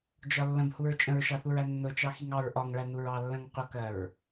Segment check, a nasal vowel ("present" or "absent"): present